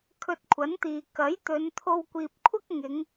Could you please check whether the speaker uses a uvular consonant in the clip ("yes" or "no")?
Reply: no